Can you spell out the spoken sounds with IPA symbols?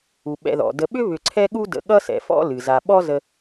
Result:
u˩ ɓ ɛ̰˨ ð ɔ̰˩ d ə˨ ɓ ʏ˥ β ʏ˨ ǀʰ ɛ˦ ɠ u˦ d ə̰˨ ɠ ʌ˦ s ɛ̰˩ f ɔ̰˦ l ɨ˩ z a˨ ɓ ɔ˥ z ə˦

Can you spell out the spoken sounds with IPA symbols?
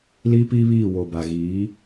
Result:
l i˦ p i˦ β iː˦˨ w o˨ b a˨ ɣ iː˨˦

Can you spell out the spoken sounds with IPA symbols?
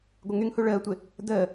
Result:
ɡʷ ɪ ŋ y ŋ h u ɭ əː tʷ ɪ | d əː

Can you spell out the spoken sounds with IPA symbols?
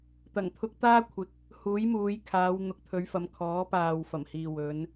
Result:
t̪ ɐ˨˩ ŋ t̪ʰ ʊ˧ k̚ t̪ aː˥ kʷʰ ɪ˨˥ k̚ | h uː˨˥ j m uː˨˧ j kʰ aː˨˧ w n̪ ʊ˨˥ k̚ t̪ʰ ɵ˨˧ ɥ f ɐ˨˧ m kʰ ɔː˨˥ p aː˨ w f ɐ˨˩ m h iː˨ w ɵ˨˧ n

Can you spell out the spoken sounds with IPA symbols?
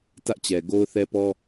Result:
t ä˦ ʔ t͡ɕ ɛ˨ ɡ o˦ ʊ̯ θ ɛ˦ p ɔ˦

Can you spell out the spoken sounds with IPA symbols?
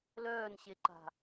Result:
l œː n ɕ e ǃ a̤

